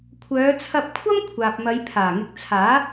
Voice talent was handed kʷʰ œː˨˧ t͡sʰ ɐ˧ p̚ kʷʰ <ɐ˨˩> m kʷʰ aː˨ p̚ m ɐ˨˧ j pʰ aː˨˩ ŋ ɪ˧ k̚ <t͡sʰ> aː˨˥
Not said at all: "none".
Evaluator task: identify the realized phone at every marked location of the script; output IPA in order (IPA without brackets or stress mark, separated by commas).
ɐ˥, t͡sʰ